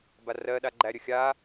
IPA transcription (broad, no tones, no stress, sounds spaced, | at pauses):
b a r ɜ ɗ a ɡ͡ǃ æ ɾʲ ə xʲ a